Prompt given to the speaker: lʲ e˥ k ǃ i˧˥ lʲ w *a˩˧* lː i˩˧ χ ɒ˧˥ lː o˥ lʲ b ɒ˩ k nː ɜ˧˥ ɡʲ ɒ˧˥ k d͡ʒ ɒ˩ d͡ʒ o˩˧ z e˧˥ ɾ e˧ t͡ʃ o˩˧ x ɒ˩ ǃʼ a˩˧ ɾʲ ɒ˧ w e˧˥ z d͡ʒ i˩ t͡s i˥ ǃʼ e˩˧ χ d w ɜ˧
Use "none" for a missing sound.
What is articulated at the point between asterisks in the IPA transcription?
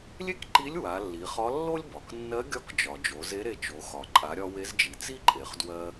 a˩˧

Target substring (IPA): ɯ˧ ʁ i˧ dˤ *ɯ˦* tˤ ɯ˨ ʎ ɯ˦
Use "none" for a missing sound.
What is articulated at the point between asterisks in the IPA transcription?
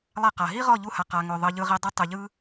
ɯ˦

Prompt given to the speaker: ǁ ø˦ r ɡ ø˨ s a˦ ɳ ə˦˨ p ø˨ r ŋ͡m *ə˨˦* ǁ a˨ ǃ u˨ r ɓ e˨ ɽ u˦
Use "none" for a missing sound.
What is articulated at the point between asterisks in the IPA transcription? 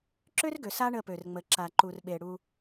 ə˨˦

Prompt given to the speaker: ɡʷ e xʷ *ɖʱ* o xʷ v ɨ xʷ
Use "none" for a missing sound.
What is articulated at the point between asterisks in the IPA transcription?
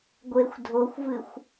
dʱ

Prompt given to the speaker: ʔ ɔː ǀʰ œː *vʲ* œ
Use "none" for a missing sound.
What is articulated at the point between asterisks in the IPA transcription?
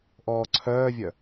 vʲ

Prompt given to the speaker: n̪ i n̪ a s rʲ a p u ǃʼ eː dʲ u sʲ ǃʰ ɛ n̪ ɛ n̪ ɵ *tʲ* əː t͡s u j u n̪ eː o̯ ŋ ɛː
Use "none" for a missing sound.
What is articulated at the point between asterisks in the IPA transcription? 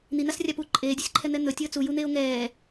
tʲ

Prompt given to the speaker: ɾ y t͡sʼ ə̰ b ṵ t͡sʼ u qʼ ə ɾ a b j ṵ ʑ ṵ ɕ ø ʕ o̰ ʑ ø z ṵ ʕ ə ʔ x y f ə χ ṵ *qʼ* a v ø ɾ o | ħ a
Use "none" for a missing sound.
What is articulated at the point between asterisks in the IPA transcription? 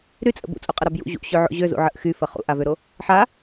ʔ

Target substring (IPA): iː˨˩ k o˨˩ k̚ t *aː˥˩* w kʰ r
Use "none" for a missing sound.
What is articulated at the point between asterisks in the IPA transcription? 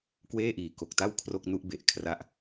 a˥˩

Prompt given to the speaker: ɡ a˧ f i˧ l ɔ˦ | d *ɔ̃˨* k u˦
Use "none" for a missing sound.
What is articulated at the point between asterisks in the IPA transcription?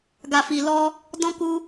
ɔ̃˦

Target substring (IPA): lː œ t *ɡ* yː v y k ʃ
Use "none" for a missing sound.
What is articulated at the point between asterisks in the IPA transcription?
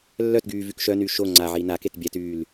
ɡ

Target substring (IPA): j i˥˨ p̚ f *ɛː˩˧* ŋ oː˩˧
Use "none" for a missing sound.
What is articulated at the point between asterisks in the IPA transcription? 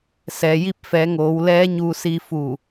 ɛː˩˧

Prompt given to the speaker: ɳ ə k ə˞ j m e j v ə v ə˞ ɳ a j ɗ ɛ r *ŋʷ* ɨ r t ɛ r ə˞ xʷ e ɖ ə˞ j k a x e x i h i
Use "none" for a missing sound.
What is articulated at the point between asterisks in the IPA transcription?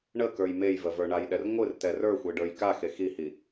ŋʷ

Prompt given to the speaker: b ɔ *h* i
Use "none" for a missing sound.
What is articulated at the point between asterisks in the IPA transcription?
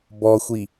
xʷ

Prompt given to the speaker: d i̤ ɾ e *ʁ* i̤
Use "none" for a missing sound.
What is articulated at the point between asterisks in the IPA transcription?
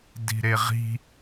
ʁ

